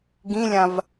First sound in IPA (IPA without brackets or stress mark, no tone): ɡ